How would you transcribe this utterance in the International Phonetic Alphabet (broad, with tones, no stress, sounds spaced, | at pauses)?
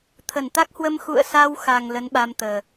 t̪ʰ ə˧˩ n t̪ a˦˥ k̚ h w ə˧ m x ṵ˧˨ ə̯ s a˧ w x a˨˩ ŋ l ə˨˦ n ɓ a˧ m t̪ əː˨˩